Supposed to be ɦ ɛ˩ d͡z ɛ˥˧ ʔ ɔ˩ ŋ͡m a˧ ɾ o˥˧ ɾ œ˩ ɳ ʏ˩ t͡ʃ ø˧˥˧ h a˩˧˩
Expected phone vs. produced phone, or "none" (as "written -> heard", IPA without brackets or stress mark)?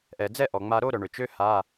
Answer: ɦ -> ʔ